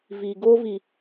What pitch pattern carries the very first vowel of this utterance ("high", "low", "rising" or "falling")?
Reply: low